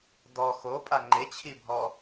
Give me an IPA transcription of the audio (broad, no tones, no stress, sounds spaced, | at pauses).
d ɔ x o pʼ a ŋ͡ǃ e t͡ɕʰ i bʱ ɔ